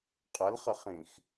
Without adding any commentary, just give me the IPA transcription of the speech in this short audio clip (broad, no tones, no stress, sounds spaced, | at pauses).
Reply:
qʼ ɐ l χ ə χ ĩ x